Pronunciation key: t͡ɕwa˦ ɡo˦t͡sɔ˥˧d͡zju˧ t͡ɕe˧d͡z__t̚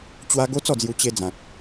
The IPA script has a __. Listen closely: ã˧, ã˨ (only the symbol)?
ã˨